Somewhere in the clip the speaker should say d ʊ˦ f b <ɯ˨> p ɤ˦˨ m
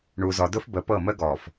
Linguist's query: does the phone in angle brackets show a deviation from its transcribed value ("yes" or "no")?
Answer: yes